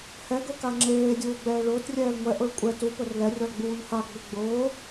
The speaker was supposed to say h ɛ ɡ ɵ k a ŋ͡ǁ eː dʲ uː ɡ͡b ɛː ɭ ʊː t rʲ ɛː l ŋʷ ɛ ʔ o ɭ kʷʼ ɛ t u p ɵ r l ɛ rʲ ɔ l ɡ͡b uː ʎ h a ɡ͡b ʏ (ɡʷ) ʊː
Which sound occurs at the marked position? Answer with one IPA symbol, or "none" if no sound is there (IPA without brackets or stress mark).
ɡ͡b